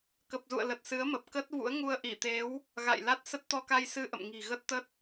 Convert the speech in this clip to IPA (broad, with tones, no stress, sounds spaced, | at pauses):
k ə˨˩ p̚ z ṵ˧˨ ə̯ l ə˨˩ t̚ s ɨ˨˦ ə̯ m əː˨˩ p̚ k ə˦˥ t̚ v ṵ˧˥ ə̯ ŋ u˧ ə̯ ʔ i˧˩ t̪ e˨˦ w | ɣ a̰˧˨ j l a˦˥ t̚ s ə˦˥ t̚ t̪ ɔ˧ k a˧ j s ɨ˧ ʔ ə̰˧˨ m ŋ i̤˨˩ ɣ ə˦˥ t̚ t̪ ə˦˥ t̚